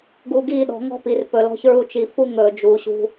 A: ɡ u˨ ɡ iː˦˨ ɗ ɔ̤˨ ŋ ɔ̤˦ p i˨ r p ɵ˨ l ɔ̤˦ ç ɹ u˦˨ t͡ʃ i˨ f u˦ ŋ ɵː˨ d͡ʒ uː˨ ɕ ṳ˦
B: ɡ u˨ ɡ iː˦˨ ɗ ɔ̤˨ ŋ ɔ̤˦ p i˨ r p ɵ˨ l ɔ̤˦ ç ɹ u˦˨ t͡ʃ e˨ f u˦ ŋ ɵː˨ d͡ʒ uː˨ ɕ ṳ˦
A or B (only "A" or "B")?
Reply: A